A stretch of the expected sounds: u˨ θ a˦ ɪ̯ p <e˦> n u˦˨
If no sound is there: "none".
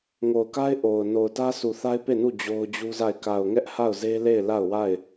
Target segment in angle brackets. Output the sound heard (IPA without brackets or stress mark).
e˦˨